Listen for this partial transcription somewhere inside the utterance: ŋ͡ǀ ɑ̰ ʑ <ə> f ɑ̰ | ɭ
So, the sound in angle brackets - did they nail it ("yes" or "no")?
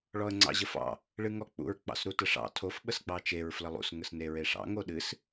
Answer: yes